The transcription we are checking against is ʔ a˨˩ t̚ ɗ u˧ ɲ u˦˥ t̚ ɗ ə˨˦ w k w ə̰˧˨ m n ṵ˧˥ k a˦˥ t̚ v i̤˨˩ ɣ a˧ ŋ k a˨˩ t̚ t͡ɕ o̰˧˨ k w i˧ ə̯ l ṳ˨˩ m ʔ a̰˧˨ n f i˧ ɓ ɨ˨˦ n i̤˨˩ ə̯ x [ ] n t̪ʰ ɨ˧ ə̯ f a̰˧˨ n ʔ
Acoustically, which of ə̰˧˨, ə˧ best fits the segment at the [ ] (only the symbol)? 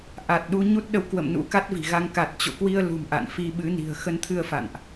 ə˧